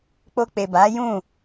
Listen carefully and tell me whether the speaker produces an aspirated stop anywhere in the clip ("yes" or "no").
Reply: no